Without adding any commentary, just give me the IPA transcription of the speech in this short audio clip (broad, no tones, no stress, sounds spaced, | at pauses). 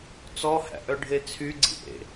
t͡s ɔ h æ̰ ʔ œ ɖʱ e t͡sʰ y ɡ͡ǀ ḭ ʔ ḛ